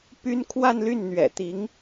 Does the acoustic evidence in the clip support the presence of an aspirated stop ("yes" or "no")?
yes